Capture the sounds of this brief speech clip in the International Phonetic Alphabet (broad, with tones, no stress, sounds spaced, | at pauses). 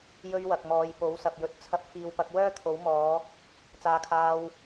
j ɵ˧ ɥ w ɐ˨ k̚ m ɔː˨˧ j p o˨˥ w s ɐ˨ p̚ j ɵ˨ t̚ t͡sʰ ɐ˧ p̚ f iː˧ w p ɐ˨˥ k̚ w œː˥ t̪ʰ o˨˥ w m ɔː˨˧ | t͡s aː˨˧ kʰ aː˧ w